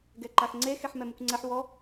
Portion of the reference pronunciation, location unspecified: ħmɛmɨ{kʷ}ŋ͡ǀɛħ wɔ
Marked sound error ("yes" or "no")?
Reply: no